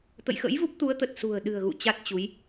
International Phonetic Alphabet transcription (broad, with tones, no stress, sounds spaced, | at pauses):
t̪ ə̰˧˨ j x ə̰˧˥ j v u˦˥ p̚ t̪ u˨˦ ə̯ t̪ ə˨˩ t̚ s ṳ˨˩ ə̯ ɗ ɨ̤˨˩ ə̯ ɣ ṵ˧˨ t͡ɕ a˦˥ t̚ t͡ɕ u˨˦ j